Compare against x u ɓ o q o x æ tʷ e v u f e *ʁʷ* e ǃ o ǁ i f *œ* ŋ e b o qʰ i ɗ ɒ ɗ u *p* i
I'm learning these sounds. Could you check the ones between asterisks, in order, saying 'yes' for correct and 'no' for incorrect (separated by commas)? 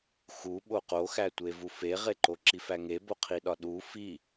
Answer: no, no, no